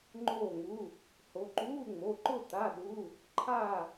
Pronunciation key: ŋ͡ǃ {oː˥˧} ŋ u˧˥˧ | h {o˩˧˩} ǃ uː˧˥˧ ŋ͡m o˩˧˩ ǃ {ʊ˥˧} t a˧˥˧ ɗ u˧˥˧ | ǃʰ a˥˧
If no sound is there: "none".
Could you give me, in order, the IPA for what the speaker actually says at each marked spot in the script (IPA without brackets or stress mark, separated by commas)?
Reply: oː˥˧, o˨˦, ʊ˥˧